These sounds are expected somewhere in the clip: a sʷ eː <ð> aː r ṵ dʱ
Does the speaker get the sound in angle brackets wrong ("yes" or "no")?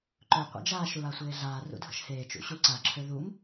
yes